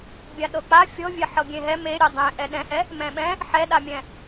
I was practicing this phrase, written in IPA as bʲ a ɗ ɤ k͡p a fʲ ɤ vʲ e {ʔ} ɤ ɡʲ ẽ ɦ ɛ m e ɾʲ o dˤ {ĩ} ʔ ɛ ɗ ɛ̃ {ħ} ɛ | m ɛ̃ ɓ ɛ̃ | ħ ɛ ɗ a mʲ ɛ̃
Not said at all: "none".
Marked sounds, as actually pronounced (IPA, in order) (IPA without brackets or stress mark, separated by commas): ħ, ẽ, h